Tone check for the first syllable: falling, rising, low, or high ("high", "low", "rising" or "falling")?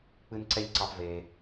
high